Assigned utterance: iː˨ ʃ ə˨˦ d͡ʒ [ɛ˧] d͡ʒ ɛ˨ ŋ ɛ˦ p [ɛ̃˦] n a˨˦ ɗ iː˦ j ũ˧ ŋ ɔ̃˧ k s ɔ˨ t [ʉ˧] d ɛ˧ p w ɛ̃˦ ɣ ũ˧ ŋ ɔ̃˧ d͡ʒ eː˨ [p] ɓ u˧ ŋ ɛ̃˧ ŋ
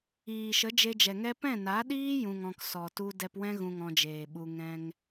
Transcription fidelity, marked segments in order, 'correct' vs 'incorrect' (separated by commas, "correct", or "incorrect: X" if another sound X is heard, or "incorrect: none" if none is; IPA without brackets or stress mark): incorrect: e˧, incorrect: ɛ̃˦˨, incorrect: u˧, incorrect: none